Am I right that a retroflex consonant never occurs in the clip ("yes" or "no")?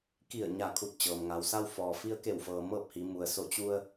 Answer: yes